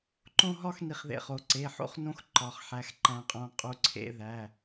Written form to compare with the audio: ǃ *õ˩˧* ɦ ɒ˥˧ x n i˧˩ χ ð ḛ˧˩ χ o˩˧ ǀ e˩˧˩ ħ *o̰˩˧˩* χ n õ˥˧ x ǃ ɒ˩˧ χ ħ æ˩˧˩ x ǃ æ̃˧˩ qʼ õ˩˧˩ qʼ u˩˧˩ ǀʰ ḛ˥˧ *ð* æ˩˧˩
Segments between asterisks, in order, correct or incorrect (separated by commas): incorrect, incorrect, correct